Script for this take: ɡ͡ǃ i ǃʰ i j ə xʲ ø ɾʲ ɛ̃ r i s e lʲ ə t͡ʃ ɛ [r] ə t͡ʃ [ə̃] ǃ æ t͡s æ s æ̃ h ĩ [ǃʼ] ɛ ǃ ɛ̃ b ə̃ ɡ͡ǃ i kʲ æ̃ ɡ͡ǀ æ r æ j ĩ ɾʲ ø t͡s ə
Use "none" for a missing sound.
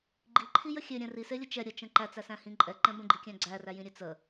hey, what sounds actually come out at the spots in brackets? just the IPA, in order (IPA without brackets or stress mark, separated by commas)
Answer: ɾʲ, ə̃, ǃʼ